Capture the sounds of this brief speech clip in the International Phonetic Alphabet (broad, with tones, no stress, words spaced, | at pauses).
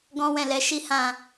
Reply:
ɡɔ̃˦wɛ̃˦˨lɛ˨˦ ʃi˦hã˦˨